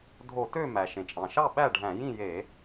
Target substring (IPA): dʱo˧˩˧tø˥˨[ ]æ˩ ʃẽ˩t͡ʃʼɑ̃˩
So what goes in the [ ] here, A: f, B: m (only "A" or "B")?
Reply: B